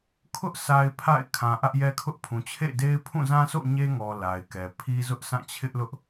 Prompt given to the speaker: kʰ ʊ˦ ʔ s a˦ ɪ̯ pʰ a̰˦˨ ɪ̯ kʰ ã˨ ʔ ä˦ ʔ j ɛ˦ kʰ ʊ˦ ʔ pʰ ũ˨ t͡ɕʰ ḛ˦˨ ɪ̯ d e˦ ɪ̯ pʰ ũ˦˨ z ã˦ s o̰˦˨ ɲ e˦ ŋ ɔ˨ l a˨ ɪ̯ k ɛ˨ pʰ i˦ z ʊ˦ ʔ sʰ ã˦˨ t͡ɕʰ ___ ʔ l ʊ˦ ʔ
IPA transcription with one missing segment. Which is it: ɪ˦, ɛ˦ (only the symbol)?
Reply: ɪ˦